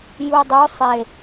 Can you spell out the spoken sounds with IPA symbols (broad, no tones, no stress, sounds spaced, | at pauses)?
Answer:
j u dˤ o sˤ e